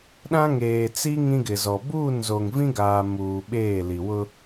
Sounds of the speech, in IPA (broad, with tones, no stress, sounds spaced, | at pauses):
ɗ ã˦ ŋ eː˨ t͡s i˦ ŋ ĩ˦ ɡ ɪ˨ z ɔ˨ b uː˦˨ n z o˨ ŋ v ĩ˦ ɡ aː˨ m uː˨ ɓ eː˦˨ l i˨ w ʊ˦